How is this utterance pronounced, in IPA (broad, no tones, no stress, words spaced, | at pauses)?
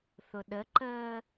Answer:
θʊɗəǃəː